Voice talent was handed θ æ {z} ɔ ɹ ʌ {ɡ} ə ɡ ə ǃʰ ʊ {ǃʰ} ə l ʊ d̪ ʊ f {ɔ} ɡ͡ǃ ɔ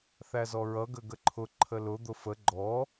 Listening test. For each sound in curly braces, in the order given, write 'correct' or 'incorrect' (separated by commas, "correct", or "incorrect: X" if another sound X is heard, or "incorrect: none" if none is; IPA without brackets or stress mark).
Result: correct, correct, correct, incorrect: ə